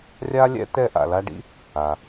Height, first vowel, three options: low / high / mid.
low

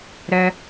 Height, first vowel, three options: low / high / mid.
mid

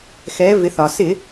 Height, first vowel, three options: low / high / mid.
mid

